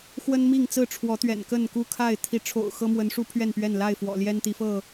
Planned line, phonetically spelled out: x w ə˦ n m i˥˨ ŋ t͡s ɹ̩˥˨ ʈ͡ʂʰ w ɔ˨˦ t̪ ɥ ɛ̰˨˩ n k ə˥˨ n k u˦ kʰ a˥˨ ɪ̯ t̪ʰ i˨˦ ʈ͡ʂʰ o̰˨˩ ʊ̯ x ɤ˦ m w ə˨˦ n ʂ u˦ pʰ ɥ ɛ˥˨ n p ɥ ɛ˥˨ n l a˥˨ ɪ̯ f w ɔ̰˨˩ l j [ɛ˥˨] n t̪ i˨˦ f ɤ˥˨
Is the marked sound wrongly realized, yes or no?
yes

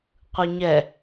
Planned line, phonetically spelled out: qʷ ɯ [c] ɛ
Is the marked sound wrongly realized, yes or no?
yes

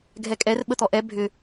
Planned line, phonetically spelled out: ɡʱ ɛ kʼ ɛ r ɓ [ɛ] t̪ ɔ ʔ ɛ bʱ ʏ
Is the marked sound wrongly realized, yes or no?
yes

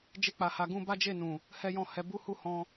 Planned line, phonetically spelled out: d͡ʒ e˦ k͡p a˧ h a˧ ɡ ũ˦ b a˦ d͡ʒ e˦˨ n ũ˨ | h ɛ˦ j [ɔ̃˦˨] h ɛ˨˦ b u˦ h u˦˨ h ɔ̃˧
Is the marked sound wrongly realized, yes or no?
no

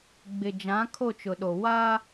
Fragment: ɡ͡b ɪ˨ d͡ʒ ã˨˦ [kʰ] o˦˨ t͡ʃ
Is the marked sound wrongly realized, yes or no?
no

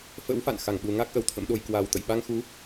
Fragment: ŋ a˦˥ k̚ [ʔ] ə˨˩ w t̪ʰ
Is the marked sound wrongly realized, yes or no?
no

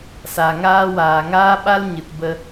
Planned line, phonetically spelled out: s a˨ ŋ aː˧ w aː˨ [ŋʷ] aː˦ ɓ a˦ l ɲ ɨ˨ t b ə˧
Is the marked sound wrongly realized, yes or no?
yes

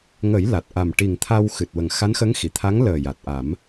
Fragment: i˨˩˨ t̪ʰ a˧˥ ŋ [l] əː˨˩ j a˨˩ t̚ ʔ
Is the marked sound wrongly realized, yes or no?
no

